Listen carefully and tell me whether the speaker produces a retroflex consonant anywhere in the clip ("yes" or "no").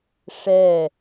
yes